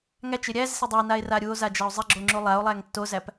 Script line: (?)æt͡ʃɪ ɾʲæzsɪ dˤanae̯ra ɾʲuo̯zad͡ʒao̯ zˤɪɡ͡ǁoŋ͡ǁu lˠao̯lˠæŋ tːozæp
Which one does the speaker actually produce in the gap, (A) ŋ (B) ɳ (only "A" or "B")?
A